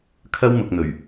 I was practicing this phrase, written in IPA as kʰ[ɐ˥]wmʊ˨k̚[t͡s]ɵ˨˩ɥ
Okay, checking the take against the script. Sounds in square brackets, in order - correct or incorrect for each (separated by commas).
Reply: correct, incorrect